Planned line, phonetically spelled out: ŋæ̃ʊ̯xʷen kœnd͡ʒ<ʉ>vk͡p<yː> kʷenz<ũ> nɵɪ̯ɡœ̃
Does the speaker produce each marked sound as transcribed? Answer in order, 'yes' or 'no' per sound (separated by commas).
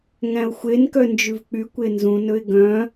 yes, no, yes